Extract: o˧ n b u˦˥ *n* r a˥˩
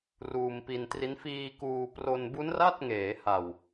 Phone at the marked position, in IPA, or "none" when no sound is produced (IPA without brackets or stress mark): n